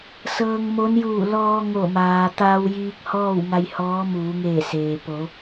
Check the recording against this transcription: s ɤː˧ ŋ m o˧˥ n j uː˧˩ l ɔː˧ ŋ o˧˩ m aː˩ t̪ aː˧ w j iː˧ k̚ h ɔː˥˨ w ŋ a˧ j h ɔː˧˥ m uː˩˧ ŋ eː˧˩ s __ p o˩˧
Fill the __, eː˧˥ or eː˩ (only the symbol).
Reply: eː˩